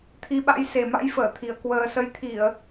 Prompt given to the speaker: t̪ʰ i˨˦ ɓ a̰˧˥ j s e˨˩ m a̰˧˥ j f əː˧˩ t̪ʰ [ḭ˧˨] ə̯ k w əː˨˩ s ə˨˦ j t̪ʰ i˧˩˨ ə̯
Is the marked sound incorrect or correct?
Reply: incorrect